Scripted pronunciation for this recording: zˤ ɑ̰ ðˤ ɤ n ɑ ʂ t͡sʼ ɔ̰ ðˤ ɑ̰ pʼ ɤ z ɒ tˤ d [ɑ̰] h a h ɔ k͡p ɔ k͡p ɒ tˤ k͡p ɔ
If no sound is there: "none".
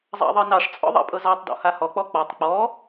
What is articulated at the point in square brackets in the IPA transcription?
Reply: ɔ̰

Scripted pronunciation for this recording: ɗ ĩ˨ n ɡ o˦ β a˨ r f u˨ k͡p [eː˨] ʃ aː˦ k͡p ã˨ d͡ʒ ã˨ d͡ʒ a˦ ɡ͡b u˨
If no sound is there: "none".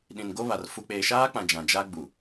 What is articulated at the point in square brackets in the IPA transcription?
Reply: eː˨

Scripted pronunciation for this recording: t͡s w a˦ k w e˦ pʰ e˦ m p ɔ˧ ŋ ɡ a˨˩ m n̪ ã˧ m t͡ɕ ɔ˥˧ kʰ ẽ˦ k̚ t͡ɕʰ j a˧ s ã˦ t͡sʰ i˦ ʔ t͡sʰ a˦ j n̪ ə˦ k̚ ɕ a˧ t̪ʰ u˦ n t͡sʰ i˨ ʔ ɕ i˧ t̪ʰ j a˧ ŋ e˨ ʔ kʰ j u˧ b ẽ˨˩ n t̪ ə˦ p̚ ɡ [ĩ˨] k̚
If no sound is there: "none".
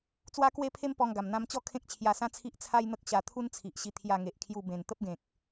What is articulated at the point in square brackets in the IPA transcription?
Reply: ẽ˨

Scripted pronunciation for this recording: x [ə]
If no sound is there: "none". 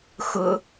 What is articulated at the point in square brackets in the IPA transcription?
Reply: ʊ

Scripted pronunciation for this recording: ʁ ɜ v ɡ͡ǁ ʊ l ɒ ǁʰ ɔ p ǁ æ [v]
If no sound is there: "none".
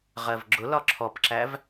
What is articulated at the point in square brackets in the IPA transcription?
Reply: v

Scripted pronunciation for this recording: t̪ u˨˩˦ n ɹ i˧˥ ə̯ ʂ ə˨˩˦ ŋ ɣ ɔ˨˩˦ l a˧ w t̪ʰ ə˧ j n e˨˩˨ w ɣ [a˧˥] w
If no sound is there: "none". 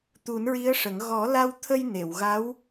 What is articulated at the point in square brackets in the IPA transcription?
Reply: a˧˥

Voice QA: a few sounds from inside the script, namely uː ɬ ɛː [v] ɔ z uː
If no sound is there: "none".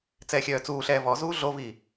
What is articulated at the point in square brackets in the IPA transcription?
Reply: v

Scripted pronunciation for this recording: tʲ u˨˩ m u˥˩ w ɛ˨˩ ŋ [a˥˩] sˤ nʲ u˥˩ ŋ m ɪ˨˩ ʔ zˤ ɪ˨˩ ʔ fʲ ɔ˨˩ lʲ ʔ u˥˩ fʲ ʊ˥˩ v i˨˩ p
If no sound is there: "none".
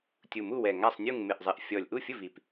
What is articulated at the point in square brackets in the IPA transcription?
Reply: a˥˩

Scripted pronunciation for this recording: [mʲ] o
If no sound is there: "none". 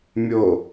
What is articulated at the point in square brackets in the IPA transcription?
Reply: mʲ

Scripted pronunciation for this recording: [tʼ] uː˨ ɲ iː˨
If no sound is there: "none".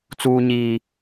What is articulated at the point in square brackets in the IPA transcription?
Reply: t͡s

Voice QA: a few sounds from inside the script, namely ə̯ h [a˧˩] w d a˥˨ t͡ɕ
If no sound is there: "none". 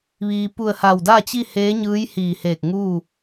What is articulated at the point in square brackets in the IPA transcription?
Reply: a˧˩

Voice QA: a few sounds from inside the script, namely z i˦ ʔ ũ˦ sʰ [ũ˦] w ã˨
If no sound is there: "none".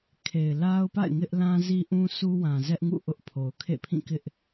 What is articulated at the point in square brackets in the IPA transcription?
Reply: u˦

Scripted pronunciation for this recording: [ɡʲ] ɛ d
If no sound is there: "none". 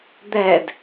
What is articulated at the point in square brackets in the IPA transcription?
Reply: d̪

